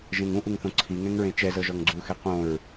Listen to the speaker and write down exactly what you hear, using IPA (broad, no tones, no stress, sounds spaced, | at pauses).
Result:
ʒ ẽ ŋ ũ ʔ u ŋ θ õ ǀʰ i ŋ ɛ̃ ŋ ɹ ẽ t͡ʃ ɛ z ɤ ʒ ɔ ŋ ɡ͡ǀ u x ɛ q õ ɹ